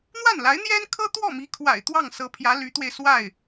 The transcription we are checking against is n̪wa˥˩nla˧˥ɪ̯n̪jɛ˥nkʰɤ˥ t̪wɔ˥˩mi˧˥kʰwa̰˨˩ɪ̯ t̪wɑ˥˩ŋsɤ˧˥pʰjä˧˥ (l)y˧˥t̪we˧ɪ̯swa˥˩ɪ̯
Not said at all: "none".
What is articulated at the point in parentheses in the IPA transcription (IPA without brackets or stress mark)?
l